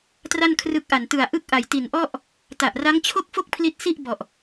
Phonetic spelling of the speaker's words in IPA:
t r a˥˩ n kʰ r ɯ˦˥ k̚ ʔ a˨˩ n t ɯ˨˩ a̯ ʔ ɯ˥˩ k̚ ʔ a˨˩ j t i˨˩ n ʔ ɔ˥˩ ʔ | t a˨˩ ʔ r a˦˥ ŋ t͡ɕʰ o˥˩ k̚ f o˥˩ k̚ pʰ l i˦˥ t̚ s i˥˩ ʔ b ɔ˨˩ ʔ

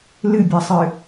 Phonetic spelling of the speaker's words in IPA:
l ɨ bʲ a sˤ ɨ

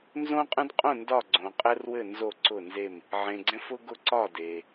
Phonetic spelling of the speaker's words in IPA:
n z õ˦ qʼ ə̃˦ d qʼ õ˦˨ n d ɒ˦˨ ɡ͡ǀ õ˨ qʼ ɛ˦ r w ɘ˦˨ n z o˦˨ ǀ ʊ˦˨ n z e˦˨ m | ʕ ẽ˨ ɡ͡ǀ ɛ̃˦ f ʊ˦ ɡ ʊ˦˨ ǀ ɒ˦˨ d e˨

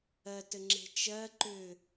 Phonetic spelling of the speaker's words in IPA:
ɜ t ɘ ŋ͡ǁ e̤ t͡ʃ ɜ ǃ ʏ

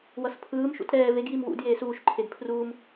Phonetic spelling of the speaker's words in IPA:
w ʌ s pʰ ɯː m ʃ ṵ t ɾ ɛː v e ɡ j i m w ṵ d j eː s uː ʃ ǃʰ e d pʰ r uː m

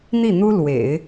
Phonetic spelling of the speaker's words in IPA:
n̪ i˥˩ n̪ u˥ l w ḛ˨˩˦ ɪ̯

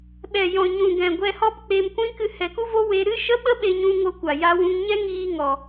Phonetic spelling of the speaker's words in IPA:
ɓ ɛ˨ j ɔ̃˨ ɲ ũ˨ ɡ ɛ̃˨ ɡʷ ɛ˧ h ɔ˦ p k͡p e˧ m kʷ ĩ˦ k ɨ˧ h ɛ˨ k u˦ v o˦ w e˧ ɾ ɨ˦ ʃ ə˦ ɓ ə˦ ɓ e˧ ɲ ũ˧ ŋ o˧ kʷ a˨ j a˧ w ũ˧ ŋ ɲ ɛ˦ ŋ iː˧ ŋ ɔ˨

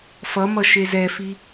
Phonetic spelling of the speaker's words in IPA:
f ʌ m ʌ ʃ e z ɛ f i

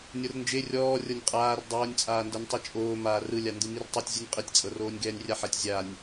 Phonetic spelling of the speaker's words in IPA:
nʲ ɤ r n d͡ʒ e rʲ ɔː rʲ ɤ nʲ qʼ aː r dˤ oː nʲ t͡sʼ aː n d ɤ nʲ tˤ ɯ t͡ʃʼ oː m aː r ɯ lʲ a n d ɯ m i r tˤ ɛ tʲ zʲ u nʲ qʼ i tʲ t͡sʼ ɤ r oː nʲ ɡ ɛː nʲ rʲ a ħ ɛ tʲ zʲ a nʲ

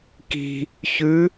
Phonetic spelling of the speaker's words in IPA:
k i̤ | ç ʉ

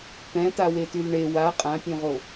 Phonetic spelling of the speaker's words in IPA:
t̪ ɛ̃ t a w e t y l ɳ e w a qʼ ã pʲ õ ʁ o

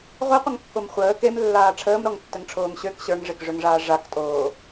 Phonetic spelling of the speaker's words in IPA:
ʁʷ e qʷ ə ŋ kː o m χʷ əː k e m lː aː ʈ͡ʂʰ əː m ɾ ɔ ŋ tː ə ŋ ʈ͡ʂʰ oː ŋ ɕ ø k ɕ ə˞ ŋ ʐ e k ʐ ø ŋ ʐ aː ʐ a k tʼ oː

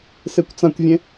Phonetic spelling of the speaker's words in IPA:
s ɪː kʷ t͡s ã kʷ vʲ ẽ

